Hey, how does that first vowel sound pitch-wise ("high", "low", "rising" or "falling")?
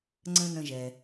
high